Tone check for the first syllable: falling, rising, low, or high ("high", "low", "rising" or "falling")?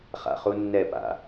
low